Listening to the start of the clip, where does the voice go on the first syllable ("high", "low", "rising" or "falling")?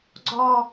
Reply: falling